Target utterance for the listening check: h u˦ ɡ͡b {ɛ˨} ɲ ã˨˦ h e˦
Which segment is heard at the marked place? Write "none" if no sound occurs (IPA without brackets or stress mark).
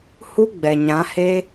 ɛ˨